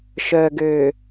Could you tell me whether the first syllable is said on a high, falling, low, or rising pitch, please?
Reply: low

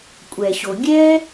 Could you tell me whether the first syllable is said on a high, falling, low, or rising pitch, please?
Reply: low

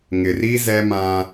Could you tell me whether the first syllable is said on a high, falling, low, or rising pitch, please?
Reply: low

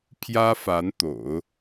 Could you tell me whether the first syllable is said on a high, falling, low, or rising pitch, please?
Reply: high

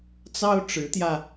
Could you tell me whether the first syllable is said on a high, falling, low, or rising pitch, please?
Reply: high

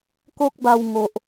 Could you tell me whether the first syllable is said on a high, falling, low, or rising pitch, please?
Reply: high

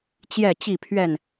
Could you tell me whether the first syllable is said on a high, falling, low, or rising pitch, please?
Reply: falling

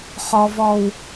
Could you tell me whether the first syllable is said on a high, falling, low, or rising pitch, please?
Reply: low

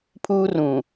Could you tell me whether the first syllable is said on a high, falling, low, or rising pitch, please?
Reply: high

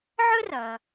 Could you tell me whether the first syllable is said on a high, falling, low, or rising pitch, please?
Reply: high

